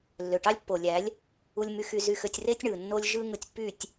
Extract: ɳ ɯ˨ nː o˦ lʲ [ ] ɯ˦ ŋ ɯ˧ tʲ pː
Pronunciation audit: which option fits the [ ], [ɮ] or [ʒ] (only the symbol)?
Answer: ʒ